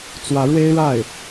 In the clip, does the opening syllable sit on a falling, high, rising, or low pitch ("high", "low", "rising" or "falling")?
rising